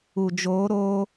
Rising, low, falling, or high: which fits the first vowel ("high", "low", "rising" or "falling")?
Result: low